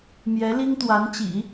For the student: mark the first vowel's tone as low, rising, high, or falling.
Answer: rising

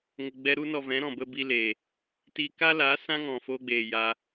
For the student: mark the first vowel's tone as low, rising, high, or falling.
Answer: low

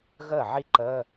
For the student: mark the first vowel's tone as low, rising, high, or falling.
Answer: falling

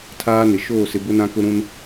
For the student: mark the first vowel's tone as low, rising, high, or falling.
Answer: high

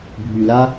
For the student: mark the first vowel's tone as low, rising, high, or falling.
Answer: low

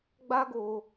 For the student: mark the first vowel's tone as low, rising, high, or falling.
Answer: high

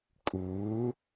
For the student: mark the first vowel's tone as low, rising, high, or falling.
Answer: rising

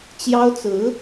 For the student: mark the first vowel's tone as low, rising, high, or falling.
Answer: high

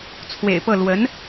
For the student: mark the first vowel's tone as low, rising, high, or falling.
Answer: low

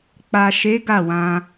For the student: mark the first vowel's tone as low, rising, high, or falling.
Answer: low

